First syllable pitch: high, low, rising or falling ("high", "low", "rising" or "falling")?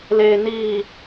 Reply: low